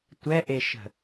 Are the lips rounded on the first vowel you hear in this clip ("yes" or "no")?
no